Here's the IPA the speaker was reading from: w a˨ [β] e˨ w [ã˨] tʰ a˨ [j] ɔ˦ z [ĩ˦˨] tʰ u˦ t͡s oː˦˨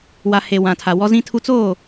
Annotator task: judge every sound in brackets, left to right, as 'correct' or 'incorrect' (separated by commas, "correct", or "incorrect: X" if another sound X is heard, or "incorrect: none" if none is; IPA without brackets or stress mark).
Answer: incorrect: h, correct, incorrect: w, incorrect: ĩ˦